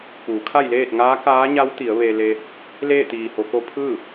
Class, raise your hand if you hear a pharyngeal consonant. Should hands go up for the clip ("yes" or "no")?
no